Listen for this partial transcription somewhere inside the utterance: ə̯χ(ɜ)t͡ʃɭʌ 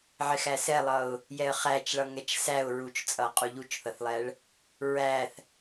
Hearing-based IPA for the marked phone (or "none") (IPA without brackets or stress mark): æ